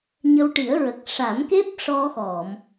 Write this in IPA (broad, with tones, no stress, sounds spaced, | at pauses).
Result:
ɲ ə˧ w ʈ i˨˩˦ ə̯ ɹ ə˨˩ k̚ ʂ a˨˩˦ m k e˦˥ p̚ ʂ ɔ˧ x ɔ˨˩˨ m